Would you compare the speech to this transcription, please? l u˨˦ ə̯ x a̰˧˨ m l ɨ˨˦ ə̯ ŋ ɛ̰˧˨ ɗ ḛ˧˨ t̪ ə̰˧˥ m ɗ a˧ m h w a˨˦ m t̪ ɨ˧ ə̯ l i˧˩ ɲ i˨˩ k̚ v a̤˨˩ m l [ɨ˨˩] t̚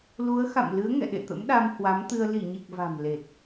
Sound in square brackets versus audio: incorrect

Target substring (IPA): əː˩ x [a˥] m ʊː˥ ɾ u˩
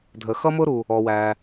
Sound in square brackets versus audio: incorrect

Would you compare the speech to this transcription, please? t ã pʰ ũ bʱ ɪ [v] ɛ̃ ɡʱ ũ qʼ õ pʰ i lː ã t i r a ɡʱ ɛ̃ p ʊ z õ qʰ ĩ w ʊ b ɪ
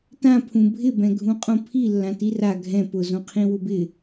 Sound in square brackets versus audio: incorrect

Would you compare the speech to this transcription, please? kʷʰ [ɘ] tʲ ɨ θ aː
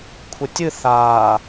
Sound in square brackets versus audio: correct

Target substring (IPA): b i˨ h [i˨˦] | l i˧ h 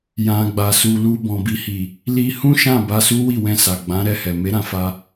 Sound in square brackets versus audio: incorrect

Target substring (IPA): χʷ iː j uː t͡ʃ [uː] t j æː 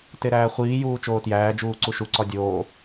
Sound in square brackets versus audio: incorrect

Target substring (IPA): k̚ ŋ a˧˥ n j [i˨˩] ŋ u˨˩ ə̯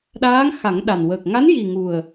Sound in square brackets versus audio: correct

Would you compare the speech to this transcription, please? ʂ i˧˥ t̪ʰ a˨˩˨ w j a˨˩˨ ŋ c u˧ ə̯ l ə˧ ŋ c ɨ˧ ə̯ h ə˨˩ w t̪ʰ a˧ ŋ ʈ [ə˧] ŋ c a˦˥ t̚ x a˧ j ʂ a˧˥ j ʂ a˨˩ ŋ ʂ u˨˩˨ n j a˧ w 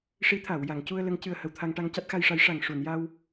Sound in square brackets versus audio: incorrect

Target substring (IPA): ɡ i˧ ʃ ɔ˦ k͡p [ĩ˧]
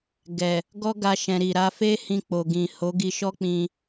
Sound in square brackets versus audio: correct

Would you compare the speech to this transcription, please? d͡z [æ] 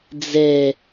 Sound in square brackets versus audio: incorrect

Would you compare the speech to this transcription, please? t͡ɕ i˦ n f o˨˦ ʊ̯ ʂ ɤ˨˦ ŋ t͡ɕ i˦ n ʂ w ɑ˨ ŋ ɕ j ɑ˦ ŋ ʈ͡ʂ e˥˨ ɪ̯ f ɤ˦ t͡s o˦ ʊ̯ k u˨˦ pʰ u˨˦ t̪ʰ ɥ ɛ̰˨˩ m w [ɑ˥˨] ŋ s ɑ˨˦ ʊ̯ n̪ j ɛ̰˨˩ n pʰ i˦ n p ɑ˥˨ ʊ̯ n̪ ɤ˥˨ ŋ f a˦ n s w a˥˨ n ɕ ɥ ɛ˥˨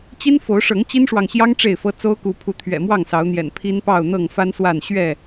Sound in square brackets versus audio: correct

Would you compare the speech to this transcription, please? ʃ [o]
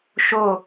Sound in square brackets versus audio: correct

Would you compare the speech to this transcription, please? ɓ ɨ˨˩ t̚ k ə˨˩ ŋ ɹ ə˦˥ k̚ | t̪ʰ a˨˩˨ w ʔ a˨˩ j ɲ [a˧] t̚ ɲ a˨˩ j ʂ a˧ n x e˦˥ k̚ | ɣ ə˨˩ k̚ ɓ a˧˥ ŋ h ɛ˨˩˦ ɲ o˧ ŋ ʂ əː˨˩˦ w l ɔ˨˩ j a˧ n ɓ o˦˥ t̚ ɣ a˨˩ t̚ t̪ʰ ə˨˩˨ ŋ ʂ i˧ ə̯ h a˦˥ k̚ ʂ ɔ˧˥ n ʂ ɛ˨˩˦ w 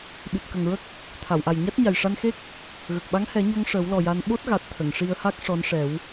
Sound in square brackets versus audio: incorrect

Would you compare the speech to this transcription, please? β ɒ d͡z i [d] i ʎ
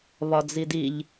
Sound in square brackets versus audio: correct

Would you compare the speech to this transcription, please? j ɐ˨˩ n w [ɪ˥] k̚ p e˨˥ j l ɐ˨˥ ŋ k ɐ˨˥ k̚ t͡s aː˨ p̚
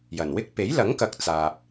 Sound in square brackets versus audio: correct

